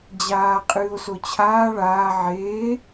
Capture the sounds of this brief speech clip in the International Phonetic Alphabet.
d͡ʑ aː qʼ ɨː o̯ s o t͡ɕʰ aː ɭ aː ʕ eː

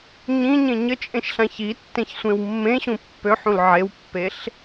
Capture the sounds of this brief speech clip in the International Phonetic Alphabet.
ɲ ĩ ɲ ẽ ɲ ə t͡ʃʼ ẽ ʃ ɬ ã ç i tː ẽ ç sʷ ẽ w mː ẽ ɕ ũ pː ø ħ ũ l ʕ e w pː e ɬ

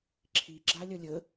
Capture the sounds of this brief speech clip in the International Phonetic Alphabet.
ǁʰ i ɡ͡ǁ a lʲ ɐ lʲ ə

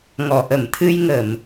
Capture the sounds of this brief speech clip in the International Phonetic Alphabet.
ŋ ɔ˨˩˨ ʔ ə˨˩˨ m t̪ʰ ɨ˧ j ŋ ə˨˩˨ m

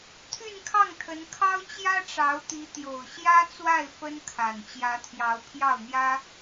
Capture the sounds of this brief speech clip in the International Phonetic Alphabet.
t̪ʰ y˥˧ n kʰ ɑ˥˩ ŋ t̪ʰ ə˧˥ n kʰ ɑ˥ ʊ̯ t͡ɕ j ä˥ ʈ͡ʂ ɑ˧˥ ʊ̯ t̪ i˧˥ t̪ j o˨˩ ʊ̯ ɕ j ä˥ t͡s w a˥˩ ɪ̯ f ə˥ n kʰ a˨˩ n t͡ɕ j ä˧˥ t̪ʰ j ɑ˧˥ ʊ̯ pʰ j ɑ˥˩ ʊ̯ n̪ j ä˥

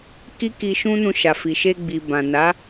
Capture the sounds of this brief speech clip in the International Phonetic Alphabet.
k i˦ k i˧ ʃ ũ˦ n ũ˧ ʃ a˨ f i˨ ʃ e˧ ɡ͡b i˨ b ã˨ n a˨˦

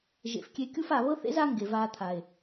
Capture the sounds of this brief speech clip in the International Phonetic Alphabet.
ʒ ḛ˨ f kʲ e˧ kʲ u˦ f a˨ β ɤ˦ θ ḛ˦ z a˦ ŋ ɡ e˨ v aː˧ t̪ʰ a˨ e̯

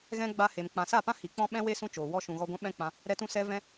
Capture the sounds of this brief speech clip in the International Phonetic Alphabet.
ɣ ɛ̃˦ ɡ͡b a˧ h e˨ m k͡p ã˨ s a˦˨ p ã˦ h i˨ k͡p ɔ̃˦ ɓ ɛ̃˦ w e˦ s ũ˧ t͡ʃ oː˨ w ɔ˧ ʃ ũ˨ ɣ ɔ˧ ɡʷ ã˦ ɓ ɛ̃˦ k͡p ã˧ | ɾ ɛ˧ t ũ˧ s ɛ˧ v ɛ̃˦

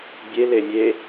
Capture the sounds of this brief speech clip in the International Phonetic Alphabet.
bʲ e l e mʲ e

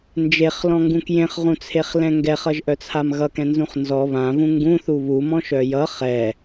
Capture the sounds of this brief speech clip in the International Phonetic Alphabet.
n d͡ʒ e χ l ɔ̃ ŋ ɡ ũ k j ẽ χ ʁ ũ t͡sʰ e χ l ɛ̃ ŋ ɡ ɛ χ ʌ ʒ ʔ œ t͡sʰ a m ɣ ʌ k ɛ̃ n z ũ χ n z ɔ β ã v ũ ŋ ɡ ũ θ u β u m ɔ̃ ʃ œ j ʌ χ ɛ

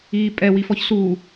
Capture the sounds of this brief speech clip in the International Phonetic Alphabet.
iː pʼ ɛ w i f ɔ ç s u

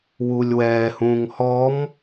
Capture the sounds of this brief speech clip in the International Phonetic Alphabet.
w u lʲ w ɛː h ũː ŋ h ɔ m

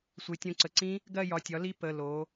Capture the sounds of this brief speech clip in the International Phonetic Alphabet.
sʷ e˩˧ tʲ õ˩˧˩ ǀ ə˩˧˩ ǀ ĩ˦˥ | ɡ ɜ˥˧ j ɒ˩˧˩ tʲ ɒ˩˥ l i˦˥ p ə˩˧˩ l o˩˧

